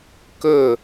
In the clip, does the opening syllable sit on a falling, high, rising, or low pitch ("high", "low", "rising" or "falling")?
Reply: falling